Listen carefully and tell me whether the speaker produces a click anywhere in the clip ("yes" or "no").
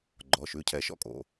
yes